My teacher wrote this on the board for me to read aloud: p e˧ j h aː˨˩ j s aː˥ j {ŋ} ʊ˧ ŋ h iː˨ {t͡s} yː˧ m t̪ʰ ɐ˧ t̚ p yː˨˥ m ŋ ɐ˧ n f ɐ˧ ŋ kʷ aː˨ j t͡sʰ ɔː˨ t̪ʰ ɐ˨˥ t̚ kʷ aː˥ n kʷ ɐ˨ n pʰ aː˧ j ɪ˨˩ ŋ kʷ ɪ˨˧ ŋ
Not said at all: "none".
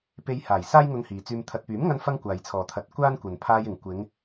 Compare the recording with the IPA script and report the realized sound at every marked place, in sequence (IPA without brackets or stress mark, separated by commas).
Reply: ŋ, t͡s